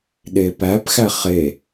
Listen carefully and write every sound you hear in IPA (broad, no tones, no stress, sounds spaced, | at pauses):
ɗ e p æ p x æ χ e